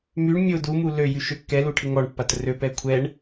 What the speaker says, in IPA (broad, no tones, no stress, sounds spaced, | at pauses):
m y ɳ mʲ o d u m u l ø j y ʃ ø kː ɛ l u ʈʰ ɪ ŋ ɔ ɳ pː a t r ø p ɛ kʷʰ ɛ ɳ